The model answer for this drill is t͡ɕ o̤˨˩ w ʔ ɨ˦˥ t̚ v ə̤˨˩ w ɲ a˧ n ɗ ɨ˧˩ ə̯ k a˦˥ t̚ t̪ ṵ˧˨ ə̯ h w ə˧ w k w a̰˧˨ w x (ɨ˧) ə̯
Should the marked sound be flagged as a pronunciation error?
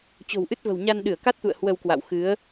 yes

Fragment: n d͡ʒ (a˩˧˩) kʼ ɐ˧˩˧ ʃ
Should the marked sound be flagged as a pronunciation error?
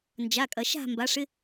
no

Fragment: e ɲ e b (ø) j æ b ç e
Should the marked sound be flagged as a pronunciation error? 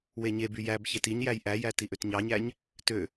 yes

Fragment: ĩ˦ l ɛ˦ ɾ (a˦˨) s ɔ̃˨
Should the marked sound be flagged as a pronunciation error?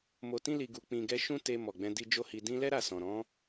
no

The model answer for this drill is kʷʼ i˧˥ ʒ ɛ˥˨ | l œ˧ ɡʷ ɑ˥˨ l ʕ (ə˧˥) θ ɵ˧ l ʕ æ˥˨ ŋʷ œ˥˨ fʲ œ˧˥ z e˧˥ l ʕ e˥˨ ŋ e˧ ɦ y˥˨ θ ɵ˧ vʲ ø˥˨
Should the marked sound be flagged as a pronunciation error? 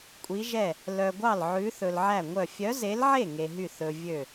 yes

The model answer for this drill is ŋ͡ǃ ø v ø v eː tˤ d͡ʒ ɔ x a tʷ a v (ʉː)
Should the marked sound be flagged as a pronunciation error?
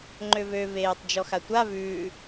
no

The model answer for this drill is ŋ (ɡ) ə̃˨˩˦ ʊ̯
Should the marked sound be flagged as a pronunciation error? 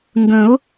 no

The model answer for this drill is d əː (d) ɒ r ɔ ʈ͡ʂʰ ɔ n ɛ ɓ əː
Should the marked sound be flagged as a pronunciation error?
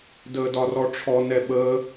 no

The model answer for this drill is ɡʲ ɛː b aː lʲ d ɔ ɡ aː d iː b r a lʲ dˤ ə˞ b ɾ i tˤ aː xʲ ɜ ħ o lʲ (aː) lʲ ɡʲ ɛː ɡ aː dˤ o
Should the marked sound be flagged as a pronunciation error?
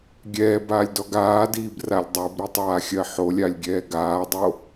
yes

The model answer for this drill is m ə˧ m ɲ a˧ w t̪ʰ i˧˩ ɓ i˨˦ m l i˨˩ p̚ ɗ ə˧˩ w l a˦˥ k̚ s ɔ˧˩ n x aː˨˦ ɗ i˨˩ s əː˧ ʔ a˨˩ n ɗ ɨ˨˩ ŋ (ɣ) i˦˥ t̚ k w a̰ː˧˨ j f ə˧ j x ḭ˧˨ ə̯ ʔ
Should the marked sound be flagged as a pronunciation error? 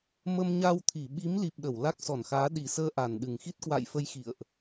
yes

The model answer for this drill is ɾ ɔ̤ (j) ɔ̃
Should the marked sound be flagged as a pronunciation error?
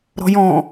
no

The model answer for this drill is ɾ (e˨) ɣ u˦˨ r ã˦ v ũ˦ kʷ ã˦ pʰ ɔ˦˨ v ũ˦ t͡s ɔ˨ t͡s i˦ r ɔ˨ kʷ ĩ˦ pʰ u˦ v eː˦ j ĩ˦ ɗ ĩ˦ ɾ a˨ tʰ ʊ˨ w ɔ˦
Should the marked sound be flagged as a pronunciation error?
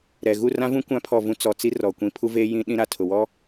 yes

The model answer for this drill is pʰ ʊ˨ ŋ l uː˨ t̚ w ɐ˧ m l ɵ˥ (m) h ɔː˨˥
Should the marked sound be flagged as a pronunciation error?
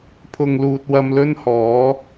yes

